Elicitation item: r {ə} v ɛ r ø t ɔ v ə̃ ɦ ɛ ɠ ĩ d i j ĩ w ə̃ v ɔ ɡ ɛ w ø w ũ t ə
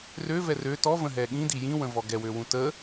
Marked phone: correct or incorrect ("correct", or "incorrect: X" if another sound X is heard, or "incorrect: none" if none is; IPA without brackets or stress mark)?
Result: incorrect: ø